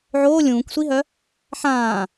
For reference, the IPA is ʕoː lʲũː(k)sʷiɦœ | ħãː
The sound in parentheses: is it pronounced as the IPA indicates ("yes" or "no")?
yes